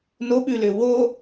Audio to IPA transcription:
n o ɓ ʉ l ʏ w o

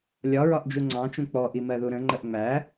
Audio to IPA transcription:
lʲ ɒ ɹ ɒ ʔ d͡ʒ u ŋ͡ǀ ɑ̃ t͡ʃ ũ k͡p ɔ ʔ i m ɜ ð u ɾ ə̃ ŋ͡ǃ ə ʔ ŋ͡m æ

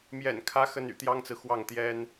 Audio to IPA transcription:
m j ɛ̰˨˩ n kʰ ä˧˥ x ə˥ n y̰˨˩ t̪ j ɑ˥ ŋ t͡s ɹ̩˨ x w ɑ˥˩ ŋ t̪ j ɛ˥ n

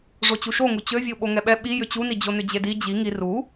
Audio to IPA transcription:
ʐ o t͡ɕ u ʃ o ŋ u t͡ɕ ø vʲ o ɓ o ŋ ɛ ɓ ɛ ɓ i j ʏ t͡ɕ u n i d͡ʑ o n ʏ d͡ʑ e d i d͡ʑ i ŋ i r u

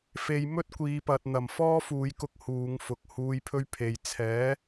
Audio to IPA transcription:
f e˨ j m ɵ˥ t̚ kʷ iː˨˧ p ɐ˨ t̚ n̪ ɐ˨˩ m f ɔː˥ f uː˨˧ j k ʊ˧ k̚ h uː˨˧ ŋ f ʊ˨ k̚ h uː˧ j pʰ ɵ˥ ɥ pʰ e˨ j t͡sʰ ɛː˨˥

